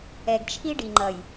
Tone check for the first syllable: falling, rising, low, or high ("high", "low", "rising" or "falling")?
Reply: low